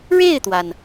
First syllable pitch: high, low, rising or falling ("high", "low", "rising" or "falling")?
falling